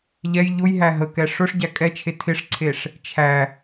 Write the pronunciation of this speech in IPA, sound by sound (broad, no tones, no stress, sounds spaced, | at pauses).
ʎ ɛ j ʎ ʊ j ɦ æ ɦ ə k ɛ ʂ ʊ ʂ ɟ æ kʼ ɛ t͡ʃʰ e tʰ ɪ ʂ ǀʰ e ʂ | t͡ʃʰ æ